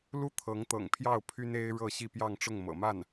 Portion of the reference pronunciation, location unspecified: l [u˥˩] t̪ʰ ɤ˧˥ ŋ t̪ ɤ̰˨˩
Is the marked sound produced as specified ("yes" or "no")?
yes